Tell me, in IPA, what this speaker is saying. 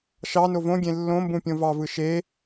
ʃ ɑ n o v õ ɡʲ ẽ lː õ m b ũ pʲ õ v ɑ v ɯ ʃ e

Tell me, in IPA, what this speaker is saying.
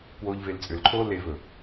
k w oː ʎ v e l t͡sʼ ʏ l ǃʰ oː l e v ɵ

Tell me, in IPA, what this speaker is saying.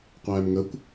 qʷ æː m ŋ ə kʷ

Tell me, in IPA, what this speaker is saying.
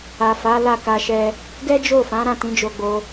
a˨ f a˨˦ l a˦˨ k a˧ ʃ ɛ˧ | ɡ ɛ˦ d͡ʒ o˦˨ f ã˨˦ ɾ ã˦˨ t ĩ˨˦ d͡ʒ o˧ ɡ͡b o˧

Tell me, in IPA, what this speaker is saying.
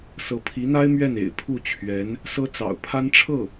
s ɤ˧˥ pʰ i˧˥ n̪ a˥ ɪ̯ m ɥ ɛ˥˩ n ḛ˨˩ ɪ̯ pʰ u˥˩ t͡ɕʰ ɥ ɛ˧˥ n | s ɤ˥ t͡s ɑ̰˨˩ ʊ̯ pʰ a˥ n ʈ͡ʂʰ ɤ˥˩

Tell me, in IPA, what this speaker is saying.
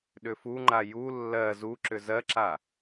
ɗ ʏ f u ŋ͡ǃ a j u lː ɜ z u ǁ ʏ z ɜ ǁ a

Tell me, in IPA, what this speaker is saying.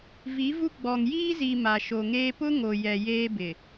v i˨˦ v u˦ ɡ͡b ɔ˨ ŋ j iː˦ z iː˨ m a˨ ʃ o˨ ŋ eː˦ p ʊ˦ ŋ o˨ j ɛ˨ j eː˦ b ɪ˨

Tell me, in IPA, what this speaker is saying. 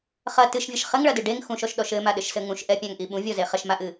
χ ɐ t ɨ ʃ vʲ ɐ ʃ χ ɘ ŋ ɭ ɐ d ɨ ɖ e ŋ x ũ ʃ ɔ ʃ ɗ ɔ ʃ ɘ m a ɗ ɘ ʃ s ɘ ŋ ũ ʃ ʔ ɛ pʲ ã ŋ ʔ i ɓ ũ vʲ ɔ z e χ ɐ ʃ m a ʔ ɨ

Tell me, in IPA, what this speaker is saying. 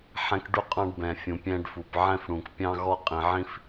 ħ ɛ̃˦ k ɖ u˦ qʼ ɑ̃˦ ɖ b ɛ̃˩ fʲ ũ˩ pʲ ɛ̃˦ ɖ f u˩ p ʕ ɛ̃˦ f ɽ ũ˩ k pʲ ɑ̃˦ ɣ ɔ˦ qʼ ĩ˩ ʕ ĩ˦ f

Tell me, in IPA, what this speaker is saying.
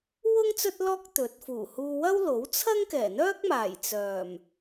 w ʊ˥ ŋ t͡s ɵ˥ t̚ l ɔː˥ k̚ t̪ ɵ˨˥ t̚ f uː˨˩ h uː˧ w ɐ˥ w l o˨˥ w t͡sʰ ɐ˥ ŋ k ɛː˨˩ n̪ œː˥ k̚ m aː˨˩ j t͡s œː˨˩ m

